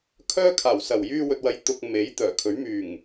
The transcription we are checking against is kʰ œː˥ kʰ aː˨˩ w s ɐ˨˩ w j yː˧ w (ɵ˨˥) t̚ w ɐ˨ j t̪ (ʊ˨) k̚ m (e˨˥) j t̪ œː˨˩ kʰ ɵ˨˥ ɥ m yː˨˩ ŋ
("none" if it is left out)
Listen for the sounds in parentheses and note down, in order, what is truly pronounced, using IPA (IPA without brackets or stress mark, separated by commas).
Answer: ɵ˨, ʊ˧, e˨˥